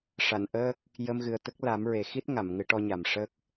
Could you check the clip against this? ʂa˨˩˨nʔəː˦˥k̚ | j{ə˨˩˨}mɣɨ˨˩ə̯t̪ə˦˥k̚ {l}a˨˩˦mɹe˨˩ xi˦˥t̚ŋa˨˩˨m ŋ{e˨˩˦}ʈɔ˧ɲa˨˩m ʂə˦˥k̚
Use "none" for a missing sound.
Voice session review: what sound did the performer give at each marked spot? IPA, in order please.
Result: ə˧, l, ɨ˨˩˦

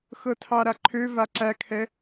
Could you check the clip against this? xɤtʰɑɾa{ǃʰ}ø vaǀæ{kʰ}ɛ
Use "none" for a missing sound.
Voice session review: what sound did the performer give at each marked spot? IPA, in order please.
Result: ǃʰ, kʰ

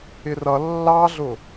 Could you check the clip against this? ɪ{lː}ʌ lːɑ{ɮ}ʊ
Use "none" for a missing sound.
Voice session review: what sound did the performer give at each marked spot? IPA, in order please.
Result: r, ɮ

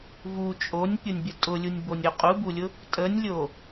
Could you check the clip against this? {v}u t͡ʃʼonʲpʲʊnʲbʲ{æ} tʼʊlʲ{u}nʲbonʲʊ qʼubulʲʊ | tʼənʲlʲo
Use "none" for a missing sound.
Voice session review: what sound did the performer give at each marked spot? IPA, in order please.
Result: v, ə, u

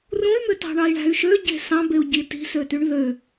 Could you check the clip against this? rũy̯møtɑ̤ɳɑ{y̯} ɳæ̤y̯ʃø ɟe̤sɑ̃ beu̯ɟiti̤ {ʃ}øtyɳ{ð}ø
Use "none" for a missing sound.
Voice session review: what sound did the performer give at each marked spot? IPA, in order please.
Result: i̯, s, ð

